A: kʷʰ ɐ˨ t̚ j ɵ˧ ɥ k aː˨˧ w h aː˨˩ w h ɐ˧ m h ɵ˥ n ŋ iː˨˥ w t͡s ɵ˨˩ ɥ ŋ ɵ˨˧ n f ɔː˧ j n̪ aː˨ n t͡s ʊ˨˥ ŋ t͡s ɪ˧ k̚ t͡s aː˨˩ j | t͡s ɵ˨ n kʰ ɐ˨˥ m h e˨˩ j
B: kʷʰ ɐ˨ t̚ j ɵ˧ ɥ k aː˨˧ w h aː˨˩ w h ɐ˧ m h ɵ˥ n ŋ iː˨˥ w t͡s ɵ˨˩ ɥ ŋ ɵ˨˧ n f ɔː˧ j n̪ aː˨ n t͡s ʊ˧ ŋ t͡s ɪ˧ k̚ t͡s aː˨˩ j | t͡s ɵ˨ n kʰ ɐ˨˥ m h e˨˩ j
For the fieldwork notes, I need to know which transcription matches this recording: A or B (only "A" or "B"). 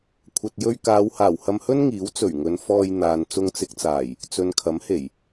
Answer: B